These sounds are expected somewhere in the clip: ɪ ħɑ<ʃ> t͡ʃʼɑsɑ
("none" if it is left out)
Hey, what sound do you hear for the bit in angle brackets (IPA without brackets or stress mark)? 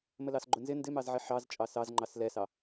z